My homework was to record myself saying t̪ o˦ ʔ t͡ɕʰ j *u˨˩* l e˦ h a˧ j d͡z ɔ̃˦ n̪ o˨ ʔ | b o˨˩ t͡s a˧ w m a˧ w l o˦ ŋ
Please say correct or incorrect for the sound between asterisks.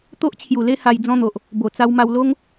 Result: correct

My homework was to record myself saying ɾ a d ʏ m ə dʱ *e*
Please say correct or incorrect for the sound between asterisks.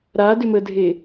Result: correct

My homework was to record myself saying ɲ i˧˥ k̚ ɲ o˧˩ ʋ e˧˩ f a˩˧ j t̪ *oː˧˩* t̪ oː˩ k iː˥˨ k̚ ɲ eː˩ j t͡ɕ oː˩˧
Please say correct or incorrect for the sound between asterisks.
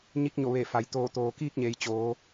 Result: correct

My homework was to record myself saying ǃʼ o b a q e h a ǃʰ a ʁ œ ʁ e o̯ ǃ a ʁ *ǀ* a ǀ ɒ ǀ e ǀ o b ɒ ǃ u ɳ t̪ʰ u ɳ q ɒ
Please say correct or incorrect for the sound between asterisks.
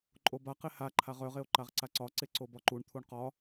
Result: correct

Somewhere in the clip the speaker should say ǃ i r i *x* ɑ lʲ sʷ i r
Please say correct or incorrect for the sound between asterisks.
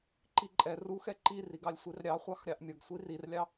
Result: incorrect: ɡ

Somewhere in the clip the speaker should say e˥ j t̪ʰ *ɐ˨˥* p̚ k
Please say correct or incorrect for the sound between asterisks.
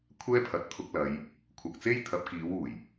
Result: correct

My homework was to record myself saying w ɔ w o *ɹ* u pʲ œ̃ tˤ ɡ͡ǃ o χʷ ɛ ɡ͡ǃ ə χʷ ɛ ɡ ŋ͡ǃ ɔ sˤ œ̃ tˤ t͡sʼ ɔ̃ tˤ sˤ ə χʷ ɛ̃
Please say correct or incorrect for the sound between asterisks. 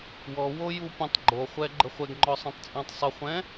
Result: incorrect: j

